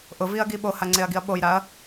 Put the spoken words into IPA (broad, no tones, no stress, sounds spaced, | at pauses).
ʔ ʊ v i ɐ̯ ɡ i ɓ o h a ŋ͡ǀ e ɐ̯ ɡ i ɐ̯ ɓ o j ɾ a ɐ̯